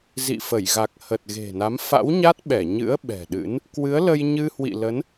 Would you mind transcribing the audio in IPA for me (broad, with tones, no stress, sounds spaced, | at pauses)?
z ḭ˧˨ f ə˧˩ j ɣ a˨˩ k̚ h ə˨˩ t̚ ɣ e̤˨˩ n a˨˦ m f a̰˧˥ w ɲ a˦˥ t̚ ɓ ɛ˧˩ ɲ ɨ̰˧˥ ə̯ ɓ ɛ̤˨˩ ɗ ɨ̰˧˥ n | k w ɨ˨˦ ə̯ l ə˧ j ɲ ɨ˧ h w ḭ˧˨ l ə˨˦ n